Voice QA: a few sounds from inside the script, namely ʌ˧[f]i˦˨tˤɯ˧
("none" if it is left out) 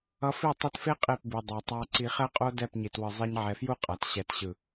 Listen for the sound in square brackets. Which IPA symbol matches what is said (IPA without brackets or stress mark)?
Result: f